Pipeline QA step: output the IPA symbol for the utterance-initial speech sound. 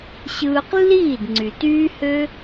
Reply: ɕ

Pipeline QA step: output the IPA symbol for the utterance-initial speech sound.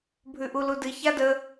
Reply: bʱ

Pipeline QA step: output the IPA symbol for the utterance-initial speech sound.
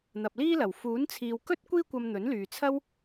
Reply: n̪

